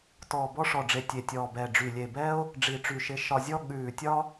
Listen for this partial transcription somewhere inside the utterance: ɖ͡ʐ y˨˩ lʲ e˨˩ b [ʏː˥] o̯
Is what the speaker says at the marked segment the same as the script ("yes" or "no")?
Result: no